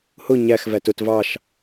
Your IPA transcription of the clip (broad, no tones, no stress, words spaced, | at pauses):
hʊ ɲæxvæt ʊt vɑʃ